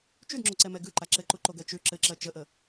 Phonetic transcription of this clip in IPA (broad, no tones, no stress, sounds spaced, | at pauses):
t͡ʃ ʉ d ŋ͡ǁ o ǀ ɛ m ɛ ɡ ʉ ǃ a ǁ ɘ ǃ u ǃ o ɡ ɜ t͡ʃ ʉ ǁ ɘ ǁ ɜ t͡ʃ ə ʔ ə